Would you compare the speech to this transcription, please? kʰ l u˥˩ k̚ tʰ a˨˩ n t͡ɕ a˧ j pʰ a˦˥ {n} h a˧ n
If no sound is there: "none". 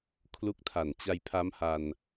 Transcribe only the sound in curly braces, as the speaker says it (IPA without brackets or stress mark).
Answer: m